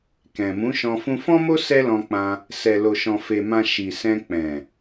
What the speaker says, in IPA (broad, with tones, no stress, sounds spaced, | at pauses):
k ɛ̃˨ m ũ˨˦ ʃ ɔ̃˧ f ũ˧ f ɔ̃˦ m o˦ s ɛ˦ l ɔ̃˧ k͡p ã˧ | s ɛ˨ l o˨ ʃ ɔ̃˨ f e˨ m ã˨ ʃ i˨ s ɛ̃˧ k͡p ɛ̃˨